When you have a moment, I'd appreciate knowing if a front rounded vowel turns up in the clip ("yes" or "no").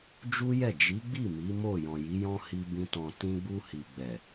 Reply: no